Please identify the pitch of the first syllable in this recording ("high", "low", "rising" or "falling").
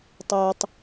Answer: low